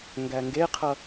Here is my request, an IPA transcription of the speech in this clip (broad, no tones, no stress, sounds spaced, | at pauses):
ŋ ɡ æ ŋ ɡ e qʰ ʌ